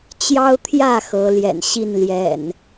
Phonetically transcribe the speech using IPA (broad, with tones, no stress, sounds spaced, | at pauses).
t͡ɕ j ɑ˦ ʊ̯ t̪ʰ j ä˥˨ x ɤ˨˦ l j ɛ̰˨˩ n ɕ i˥˨ n l j ɛ̰˨˩ n